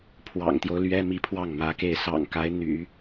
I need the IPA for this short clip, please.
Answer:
pʰ w ɑ̰˨˩ ŋ t̪ j o˦ ʊ̯ l ɥ ɛ˥ m i˧˥ pʰ w ɑ˥˩ ŋ m ä˧˥ k e˥˩ ɪ̯ s ɑ̰˨˩ ŋ k a˧˥ ɪ̯ n̪ y̰˨˩˦

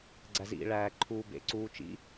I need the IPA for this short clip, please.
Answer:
ɡ͡ǀ æ z ḭ ɭ æː ǃʰ uː b ḛ ǀ uː t͡ʃ ḭ

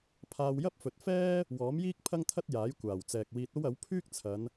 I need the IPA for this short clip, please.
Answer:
pʰ aː˧ w j ɐ˥ p̚ f ɵ˨ t̚ f ɛː˥ | w ɔː˨˥ m j iː˥ k̚ pʰ ɐ˥ ŋ t̪ʰ ɐ˥ t̚ j aː˨˥ j kʷ aː˨˩ w t͡s ɛː˨ k̚ w iː˧ t̚ o˥ w ɐ˨˥ w pʰ yː˥ k̚ t͡sʰ ɐ˨˧ n

